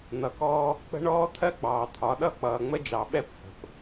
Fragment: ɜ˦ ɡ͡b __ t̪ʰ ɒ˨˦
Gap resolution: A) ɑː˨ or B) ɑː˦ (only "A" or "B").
A